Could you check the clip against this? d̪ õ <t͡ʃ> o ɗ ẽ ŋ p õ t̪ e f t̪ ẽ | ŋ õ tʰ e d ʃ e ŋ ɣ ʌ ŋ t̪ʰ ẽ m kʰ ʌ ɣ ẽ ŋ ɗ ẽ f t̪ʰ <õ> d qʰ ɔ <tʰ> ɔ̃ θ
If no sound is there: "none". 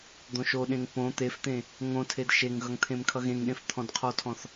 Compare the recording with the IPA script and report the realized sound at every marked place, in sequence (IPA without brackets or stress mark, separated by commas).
ʃ, ɔ̃, tʰ